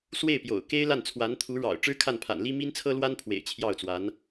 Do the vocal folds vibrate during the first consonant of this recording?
no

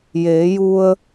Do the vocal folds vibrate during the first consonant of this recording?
yes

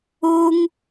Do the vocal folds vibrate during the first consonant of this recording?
yes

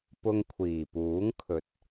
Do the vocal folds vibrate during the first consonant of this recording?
no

